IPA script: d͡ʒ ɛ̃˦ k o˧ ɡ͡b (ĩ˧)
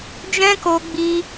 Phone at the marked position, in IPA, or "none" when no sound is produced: i˧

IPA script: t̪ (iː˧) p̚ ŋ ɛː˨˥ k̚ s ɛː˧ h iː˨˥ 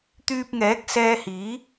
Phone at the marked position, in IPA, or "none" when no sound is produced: yː˧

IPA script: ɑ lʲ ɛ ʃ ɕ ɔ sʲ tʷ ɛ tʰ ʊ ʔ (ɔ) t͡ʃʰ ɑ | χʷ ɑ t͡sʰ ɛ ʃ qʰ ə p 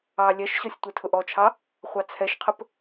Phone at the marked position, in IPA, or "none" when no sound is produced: ɔ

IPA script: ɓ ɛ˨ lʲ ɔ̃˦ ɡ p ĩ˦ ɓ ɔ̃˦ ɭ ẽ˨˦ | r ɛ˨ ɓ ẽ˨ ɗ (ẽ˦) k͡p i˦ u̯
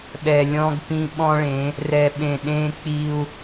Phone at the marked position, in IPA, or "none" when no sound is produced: ẽ˦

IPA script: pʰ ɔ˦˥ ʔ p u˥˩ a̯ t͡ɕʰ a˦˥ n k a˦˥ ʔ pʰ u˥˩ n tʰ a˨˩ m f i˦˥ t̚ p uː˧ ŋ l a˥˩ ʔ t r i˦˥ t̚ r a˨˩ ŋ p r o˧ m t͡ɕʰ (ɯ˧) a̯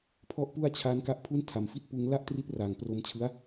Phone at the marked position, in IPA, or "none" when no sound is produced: ɯ˦˥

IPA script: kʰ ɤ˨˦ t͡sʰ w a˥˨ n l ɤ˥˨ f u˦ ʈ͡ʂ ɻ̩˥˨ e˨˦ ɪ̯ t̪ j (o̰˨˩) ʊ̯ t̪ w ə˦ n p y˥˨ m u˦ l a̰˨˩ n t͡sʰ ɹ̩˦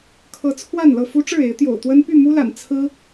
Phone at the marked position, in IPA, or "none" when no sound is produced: o̰˨˩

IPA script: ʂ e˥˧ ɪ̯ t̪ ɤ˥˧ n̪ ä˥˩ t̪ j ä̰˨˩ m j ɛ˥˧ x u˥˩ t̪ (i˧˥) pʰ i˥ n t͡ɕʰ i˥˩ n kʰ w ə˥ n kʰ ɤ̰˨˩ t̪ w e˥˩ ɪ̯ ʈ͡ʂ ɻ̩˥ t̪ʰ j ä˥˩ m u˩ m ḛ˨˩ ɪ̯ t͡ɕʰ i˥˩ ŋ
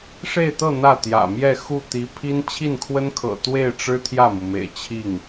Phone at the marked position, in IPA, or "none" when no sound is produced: i˧˥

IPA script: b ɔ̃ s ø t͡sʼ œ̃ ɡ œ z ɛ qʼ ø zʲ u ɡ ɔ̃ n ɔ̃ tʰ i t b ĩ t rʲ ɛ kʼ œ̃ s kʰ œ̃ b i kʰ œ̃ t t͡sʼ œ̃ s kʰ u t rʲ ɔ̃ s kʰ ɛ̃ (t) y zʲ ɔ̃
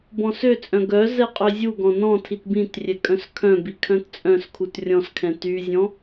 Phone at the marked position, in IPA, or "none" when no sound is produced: t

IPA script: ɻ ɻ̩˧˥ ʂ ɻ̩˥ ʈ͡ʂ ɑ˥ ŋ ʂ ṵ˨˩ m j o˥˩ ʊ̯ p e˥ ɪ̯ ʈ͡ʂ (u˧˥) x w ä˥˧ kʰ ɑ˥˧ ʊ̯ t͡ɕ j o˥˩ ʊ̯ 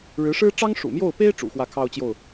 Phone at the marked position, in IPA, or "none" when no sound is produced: ṵ˨˩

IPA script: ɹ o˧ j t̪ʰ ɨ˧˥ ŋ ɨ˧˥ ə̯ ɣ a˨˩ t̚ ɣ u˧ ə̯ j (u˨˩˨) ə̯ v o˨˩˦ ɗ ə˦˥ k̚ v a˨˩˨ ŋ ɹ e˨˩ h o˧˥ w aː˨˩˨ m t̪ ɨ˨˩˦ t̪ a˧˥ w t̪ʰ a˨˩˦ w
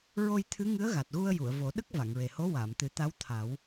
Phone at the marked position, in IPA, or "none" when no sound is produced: u˨˩˨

